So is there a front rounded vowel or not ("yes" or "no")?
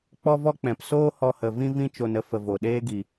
no